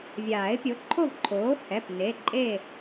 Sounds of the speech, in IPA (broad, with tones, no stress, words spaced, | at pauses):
vʲaː˨˩˦ɪ̯pʲo˩˥ǃʰo˥˨vǃʰoː˩˥ hɛ˩˧˩p ne˩˧˩ǃʼe˥˨